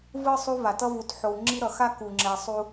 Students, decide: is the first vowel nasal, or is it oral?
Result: oral